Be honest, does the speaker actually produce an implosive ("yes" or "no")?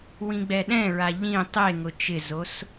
yes